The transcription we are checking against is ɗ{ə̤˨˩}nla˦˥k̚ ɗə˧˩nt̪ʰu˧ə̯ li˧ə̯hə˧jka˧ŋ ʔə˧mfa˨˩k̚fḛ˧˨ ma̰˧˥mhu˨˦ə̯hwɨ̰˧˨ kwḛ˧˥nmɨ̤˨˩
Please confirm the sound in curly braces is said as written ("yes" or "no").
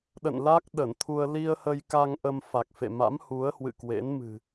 no